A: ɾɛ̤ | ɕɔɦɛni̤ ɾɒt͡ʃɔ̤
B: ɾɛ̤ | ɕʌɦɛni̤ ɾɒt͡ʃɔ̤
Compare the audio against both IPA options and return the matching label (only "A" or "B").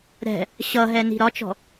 B